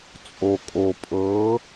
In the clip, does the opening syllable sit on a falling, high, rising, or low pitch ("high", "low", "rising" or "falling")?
low